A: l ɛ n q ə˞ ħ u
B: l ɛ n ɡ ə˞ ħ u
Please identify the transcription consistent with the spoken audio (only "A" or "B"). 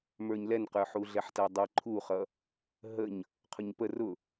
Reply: A